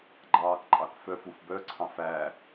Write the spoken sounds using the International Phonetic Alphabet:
ɡ͡ǃ ɑː k ǃʼ ɑ k f œ f u f b œ ǀʰ ɑ̃ f æ

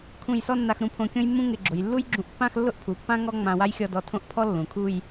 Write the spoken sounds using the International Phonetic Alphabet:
kʰ ũ˧˩ j s ɔ˥˧ nː a˧ x ɾ ũ˧ pʰ õ˧ kʲ õ˥ j mː ũ˥ ŋ ɪ˧ ɡ͡ǁ ʊ˩˧ j lː u˥ j ɡ͡ǁ ũ˧ ʔ pː ã˥˧ x lː ʊ˥˧ ʔ pʰ u˩˧ pː ã˥ ŋ ɔ˥ ŋ͡m ã˧ w a˥ j xʲ ɔ˥˧ d ɔ˧ tʰ õ˥˧ ʔ pʰ ɔ˥ lː ũ˩˧ kʰ u˥˧ j

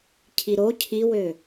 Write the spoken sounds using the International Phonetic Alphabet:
cʰ i ɾ o cʰ i w ø

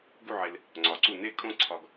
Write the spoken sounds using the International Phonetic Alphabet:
ɡ u˥˧ ʕ e˧ l | ŋ͡ǀ ɒ˩˧ ǀ u˧˩ n e˥˧ kʼ õ˥˧ ǀʰ ɒ˧ ɡ

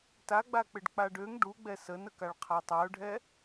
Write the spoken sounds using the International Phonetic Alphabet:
t a ɡ͡b a k͡p ɪ ɖ k͡p a ɖ ø ŋ ɖ u ɡ͡b ɛ s ə n ə k a ɭ qʰ a tˤ a ʊ̯ ɖʱ ɛ

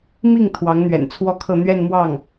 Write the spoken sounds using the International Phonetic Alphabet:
m i˥˩ ŋ t̪ʰ w ɑ˧˥ ŋ n̪ ɥ ɛ̰˨˩ n t͡sʰ w ɔ˥ kʰ ɤ˥˧ n̪ ɥ ɛ˥˧ n m w ɑ˥˩ ŋ

